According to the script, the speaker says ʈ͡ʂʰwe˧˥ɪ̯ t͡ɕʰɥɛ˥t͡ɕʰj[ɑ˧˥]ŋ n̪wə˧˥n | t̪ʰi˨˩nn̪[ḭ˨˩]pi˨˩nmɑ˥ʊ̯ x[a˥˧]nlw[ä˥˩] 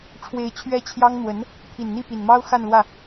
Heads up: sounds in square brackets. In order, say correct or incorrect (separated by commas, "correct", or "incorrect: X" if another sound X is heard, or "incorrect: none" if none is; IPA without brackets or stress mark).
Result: incorrect: ɑ˥, incorrect: i˥˩, correct, correct